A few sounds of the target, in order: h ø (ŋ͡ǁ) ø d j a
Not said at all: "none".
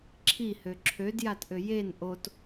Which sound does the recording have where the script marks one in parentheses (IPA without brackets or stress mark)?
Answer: ǁʰ